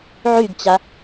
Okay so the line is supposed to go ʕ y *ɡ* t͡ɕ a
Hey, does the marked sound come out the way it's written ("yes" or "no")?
yes